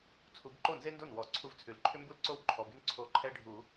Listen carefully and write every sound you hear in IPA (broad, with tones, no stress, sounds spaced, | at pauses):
t͡sʰ u˨˩˦ b ǃ o˥˩ n z e˦ n d o˥˩ n w ɔ˨˩˦ ǀʰ u˧˩ v t͡sʰ ʉ˩ l ǃʰ ʏ˦ m b u˥˩ l ǀ o˥˩ w ǃʰ ɔ˩˧˩ b ʉ˦ n ǀʰ o˧˩ ǃʰ ɛ˦ ɖʱ u˨˩˦